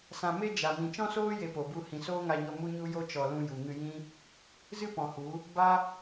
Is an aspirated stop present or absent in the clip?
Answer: absent